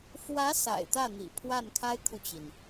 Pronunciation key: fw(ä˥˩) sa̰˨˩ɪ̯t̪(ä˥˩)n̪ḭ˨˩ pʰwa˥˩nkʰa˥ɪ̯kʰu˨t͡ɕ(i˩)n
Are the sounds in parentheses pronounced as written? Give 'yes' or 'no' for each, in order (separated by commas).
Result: no, yes, yes